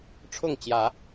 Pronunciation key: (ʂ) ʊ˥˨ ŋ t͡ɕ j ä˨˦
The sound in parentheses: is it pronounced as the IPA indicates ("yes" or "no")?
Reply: no